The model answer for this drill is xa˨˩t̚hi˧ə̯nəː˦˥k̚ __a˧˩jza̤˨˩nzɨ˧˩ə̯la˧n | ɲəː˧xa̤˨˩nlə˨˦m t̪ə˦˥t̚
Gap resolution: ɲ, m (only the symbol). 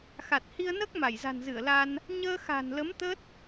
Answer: m